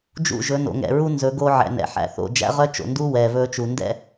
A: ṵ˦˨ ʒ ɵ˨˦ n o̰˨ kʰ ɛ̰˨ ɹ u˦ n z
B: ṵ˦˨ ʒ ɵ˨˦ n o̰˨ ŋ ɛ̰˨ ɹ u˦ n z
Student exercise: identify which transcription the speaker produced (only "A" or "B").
B